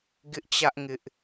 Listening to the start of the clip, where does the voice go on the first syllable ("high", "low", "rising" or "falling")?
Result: high